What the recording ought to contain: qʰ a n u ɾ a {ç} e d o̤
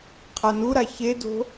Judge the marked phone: correct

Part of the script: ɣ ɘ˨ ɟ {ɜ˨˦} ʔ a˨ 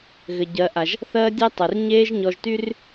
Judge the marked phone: correct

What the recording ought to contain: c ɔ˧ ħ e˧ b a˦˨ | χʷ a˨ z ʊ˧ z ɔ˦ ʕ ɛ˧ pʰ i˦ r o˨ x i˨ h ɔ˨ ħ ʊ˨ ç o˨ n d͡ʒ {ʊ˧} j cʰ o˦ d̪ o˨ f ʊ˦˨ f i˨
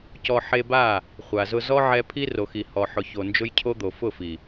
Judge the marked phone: incorrect: ʊ˦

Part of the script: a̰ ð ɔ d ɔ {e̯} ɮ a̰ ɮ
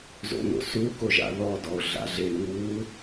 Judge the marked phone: incorrect: o̯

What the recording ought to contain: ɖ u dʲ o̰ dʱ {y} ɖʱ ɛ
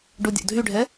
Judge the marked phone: correct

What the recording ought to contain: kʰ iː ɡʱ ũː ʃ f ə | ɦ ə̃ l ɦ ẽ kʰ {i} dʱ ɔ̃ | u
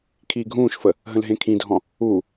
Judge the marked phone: incorrect: ĩ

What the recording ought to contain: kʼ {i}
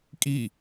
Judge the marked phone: correct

